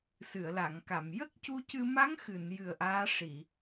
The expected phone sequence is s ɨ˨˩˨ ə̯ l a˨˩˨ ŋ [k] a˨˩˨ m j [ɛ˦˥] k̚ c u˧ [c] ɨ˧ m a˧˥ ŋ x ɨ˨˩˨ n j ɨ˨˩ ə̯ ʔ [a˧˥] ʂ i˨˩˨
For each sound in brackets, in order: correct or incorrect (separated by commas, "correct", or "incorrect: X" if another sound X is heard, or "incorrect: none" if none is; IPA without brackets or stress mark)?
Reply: correct, incorrect: ə˦˥, correct, incorrect: aː˧˥